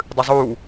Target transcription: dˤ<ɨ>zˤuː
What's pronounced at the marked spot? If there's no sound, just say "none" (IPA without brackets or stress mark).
ɨ